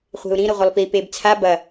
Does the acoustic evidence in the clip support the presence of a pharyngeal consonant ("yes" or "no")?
no